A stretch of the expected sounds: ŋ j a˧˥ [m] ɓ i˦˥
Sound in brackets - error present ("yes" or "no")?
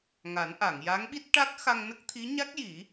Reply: yes